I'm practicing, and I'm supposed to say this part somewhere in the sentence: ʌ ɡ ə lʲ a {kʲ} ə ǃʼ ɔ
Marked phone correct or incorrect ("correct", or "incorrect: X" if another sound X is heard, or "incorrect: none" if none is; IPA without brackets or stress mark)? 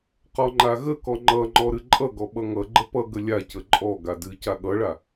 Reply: incorrect: c